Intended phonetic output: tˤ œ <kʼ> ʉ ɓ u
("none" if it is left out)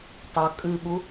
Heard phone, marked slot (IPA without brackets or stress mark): kʼ